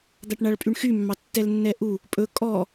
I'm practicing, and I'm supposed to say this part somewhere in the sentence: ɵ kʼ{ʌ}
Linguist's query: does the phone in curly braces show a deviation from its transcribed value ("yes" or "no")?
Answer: yes